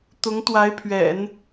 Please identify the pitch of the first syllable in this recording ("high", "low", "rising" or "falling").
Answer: rising